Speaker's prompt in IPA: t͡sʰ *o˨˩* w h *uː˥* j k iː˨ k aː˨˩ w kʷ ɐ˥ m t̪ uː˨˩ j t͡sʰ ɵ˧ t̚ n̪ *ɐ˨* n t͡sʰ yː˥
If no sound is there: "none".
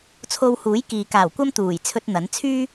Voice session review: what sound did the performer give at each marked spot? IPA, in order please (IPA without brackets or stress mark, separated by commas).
o˧, uː˨˥, ɐ˨˥